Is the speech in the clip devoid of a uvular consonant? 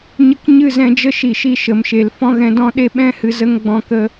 yes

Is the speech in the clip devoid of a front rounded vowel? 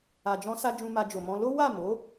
yes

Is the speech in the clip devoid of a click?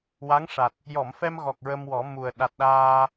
yes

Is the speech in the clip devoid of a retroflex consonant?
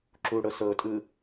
no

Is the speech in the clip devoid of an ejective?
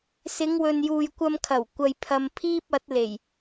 yes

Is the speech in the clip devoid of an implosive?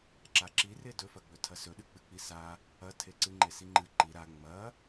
no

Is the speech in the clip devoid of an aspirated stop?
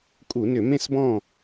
yes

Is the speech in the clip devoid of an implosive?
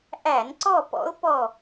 yes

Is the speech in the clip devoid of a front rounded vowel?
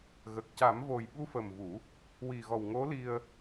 yes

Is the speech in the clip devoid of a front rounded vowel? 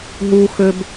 no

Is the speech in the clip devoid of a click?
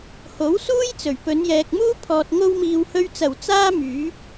yes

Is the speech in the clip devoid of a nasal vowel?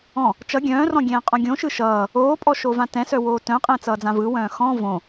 no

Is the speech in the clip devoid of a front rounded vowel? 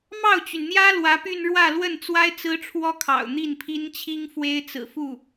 no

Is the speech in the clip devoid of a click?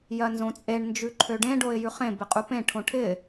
no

